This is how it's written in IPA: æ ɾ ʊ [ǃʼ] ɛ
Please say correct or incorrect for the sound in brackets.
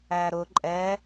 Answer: correct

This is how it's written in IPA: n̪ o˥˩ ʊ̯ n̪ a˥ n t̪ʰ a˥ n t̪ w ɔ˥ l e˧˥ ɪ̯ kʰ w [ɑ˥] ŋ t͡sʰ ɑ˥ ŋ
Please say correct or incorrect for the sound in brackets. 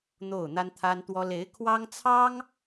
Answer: correct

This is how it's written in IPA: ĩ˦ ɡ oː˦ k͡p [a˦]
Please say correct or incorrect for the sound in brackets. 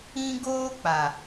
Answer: incorrect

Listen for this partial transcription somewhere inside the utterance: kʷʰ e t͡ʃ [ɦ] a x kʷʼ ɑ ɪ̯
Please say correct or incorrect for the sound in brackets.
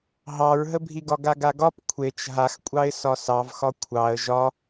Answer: correct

